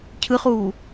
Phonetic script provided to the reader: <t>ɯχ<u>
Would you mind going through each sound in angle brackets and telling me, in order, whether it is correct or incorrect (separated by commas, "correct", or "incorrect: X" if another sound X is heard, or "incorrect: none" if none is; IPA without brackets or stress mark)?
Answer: incorrect: cʰ, correct